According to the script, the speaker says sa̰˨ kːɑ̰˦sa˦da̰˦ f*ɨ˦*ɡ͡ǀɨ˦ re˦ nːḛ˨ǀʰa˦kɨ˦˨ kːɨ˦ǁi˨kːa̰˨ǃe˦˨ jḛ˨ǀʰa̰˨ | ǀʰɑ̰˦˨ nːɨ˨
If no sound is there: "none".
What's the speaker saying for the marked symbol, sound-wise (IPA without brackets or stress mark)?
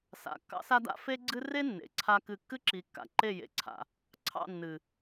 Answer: e˦